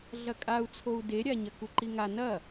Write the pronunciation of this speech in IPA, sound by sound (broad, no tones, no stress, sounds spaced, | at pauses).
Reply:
ɮ ɐ kʼ a u̯ t͡sʰ o u̯ d e ɾʲ a ɲ ɐ k u ǃ i ŋ a n ɐ